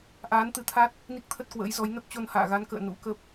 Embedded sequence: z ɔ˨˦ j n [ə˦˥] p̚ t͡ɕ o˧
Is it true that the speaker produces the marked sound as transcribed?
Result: yes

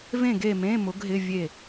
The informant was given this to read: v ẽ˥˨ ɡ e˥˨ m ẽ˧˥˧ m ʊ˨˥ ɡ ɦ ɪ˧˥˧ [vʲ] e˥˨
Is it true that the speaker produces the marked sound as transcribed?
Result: yes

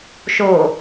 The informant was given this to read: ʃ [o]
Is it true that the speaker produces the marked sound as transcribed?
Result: yes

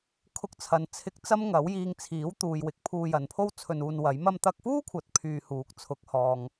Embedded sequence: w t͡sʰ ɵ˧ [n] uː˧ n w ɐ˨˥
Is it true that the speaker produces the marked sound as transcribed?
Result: yes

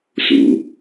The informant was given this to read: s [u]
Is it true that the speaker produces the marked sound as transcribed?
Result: no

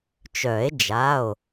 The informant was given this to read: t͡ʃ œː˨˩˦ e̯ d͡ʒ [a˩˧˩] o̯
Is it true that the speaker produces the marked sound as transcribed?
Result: yes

